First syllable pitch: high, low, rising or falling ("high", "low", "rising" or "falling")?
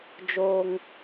high